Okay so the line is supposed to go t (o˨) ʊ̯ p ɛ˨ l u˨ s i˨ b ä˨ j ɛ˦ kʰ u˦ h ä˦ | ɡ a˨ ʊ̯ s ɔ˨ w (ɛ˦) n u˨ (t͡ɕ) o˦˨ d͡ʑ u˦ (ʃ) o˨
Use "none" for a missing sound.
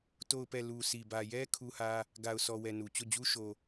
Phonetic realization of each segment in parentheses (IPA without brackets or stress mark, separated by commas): o˨, ɛ˨, t͡ɕ, ʃ